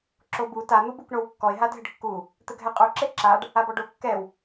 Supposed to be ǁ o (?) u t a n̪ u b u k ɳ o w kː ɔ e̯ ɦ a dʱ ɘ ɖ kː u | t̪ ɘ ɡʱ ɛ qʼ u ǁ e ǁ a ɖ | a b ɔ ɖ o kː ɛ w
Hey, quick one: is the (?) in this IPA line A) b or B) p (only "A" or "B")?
A